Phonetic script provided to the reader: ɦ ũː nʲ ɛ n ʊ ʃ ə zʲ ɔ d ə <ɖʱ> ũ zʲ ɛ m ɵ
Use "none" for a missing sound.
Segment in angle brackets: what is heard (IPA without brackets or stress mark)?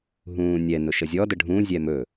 ɖʱ